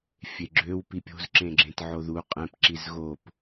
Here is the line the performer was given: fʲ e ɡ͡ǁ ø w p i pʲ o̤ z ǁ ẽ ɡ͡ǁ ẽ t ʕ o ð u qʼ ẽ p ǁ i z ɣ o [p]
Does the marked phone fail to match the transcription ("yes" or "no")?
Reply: no